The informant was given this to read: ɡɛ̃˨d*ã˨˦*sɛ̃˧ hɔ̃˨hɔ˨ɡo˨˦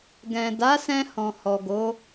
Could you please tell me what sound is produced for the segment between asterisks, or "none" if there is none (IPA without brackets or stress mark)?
a˨˦